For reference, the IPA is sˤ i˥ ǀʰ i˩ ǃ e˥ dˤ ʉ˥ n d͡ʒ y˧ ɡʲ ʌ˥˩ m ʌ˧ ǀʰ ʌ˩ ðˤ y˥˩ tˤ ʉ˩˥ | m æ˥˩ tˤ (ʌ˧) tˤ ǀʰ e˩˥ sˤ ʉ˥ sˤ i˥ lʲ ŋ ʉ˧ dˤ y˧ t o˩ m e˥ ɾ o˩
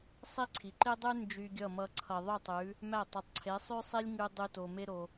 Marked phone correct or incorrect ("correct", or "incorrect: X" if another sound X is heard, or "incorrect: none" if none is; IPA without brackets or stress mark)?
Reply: incorrect: ʌ˩